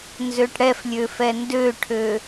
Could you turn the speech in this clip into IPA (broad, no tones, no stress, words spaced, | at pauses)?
nzøʈɽɛflʲø fɛndøʈʰø